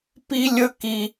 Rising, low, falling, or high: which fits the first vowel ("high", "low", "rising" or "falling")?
high